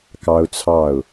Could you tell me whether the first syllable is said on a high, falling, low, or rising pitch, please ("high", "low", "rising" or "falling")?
high